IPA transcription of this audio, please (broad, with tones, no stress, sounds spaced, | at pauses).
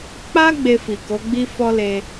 k͡p a˦ ɡ͡b e˧ f i˨ k o˨˦ ɡ͡b i˦ f ɔ˦ l e˧